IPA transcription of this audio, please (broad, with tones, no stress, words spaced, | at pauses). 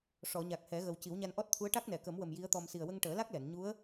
ʂɔ˨˩˨ɲa˨˩k̚ hɛ˨˩˦ɣə˨˩w ci˨˩˦wɲa˧nʔɔ˦˥t̚t̪ʰu˧˥ə̯ ʈa˦˥k̚nɛ˨˩˨kə˨˩˦mwə˨˩m ji˧˥ə̯t̪ɔ˧m si˨˩ə̯wə˧ŋʈəː˨˩˦la˦˥k̚ lɛ˨˩˨n ɲu˧˥ə̯